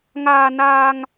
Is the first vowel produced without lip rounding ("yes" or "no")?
yes